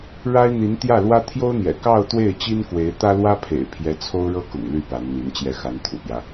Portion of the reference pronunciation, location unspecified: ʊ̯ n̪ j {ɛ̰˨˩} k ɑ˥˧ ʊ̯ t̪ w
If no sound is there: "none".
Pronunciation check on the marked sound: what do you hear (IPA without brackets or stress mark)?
ɛ̰˨˩